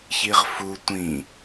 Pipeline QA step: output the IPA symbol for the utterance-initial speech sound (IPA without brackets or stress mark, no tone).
ç